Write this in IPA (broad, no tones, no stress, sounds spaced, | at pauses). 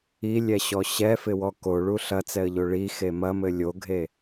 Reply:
i lʲ ɛ ɕ ɔ ɕ ɛ f ɪ w ɔ k o ɭ u ɬ ɐ t͡s ɛ ə̯ ʎ o ɭ i x e m ɐ m ɘ lʲ o ɡʱ e